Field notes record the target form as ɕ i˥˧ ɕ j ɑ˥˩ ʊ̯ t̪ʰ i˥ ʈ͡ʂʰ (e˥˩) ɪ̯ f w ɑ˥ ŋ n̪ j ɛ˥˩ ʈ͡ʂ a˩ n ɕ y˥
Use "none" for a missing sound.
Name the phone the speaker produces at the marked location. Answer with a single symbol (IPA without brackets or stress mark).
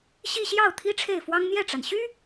e˥˩